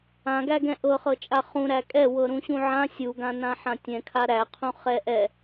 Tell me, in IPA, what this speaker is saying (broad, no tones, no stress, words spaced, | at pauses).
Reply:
ãɡæɡɛ̃ ʔɤχɤt͡ʃʼa χũ ɾækʼɛ wɤɾũɕũʕã sʲuɡã nãħãtʲɛ̃kʰa ɾæ qʰũχɛʔɛ